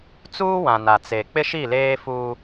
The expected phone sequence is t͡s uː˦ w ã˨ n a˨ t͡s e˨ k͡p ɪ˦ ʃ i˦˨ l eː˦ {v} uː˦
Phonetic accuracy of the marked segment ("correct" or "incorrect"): incorrect